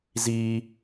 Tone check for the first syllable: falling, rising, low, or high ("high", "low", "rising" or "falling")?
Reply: high